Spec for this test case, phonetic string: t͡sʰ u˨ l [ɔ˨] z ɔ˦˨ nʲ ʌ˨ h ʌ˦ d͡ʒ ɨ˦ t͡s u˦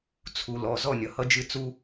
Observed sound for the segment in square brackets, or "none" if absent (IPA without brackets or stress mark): ɔ˨